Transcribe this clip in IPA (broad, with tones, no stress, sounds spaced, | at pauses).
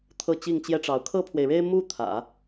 t̪ʰ ɤ˥˧ t͡ɕ i˥˩ ŋ t͡ɕ j ɛ˥ ʈ͡ʂ ɑ˧˥ ʊ̯ kʰ ɤ˥ pʰ w e˨ ɪ̯ ɻ e˥ ɪ̯ m u˥˩ t̪ʰ ä̰˨˩˦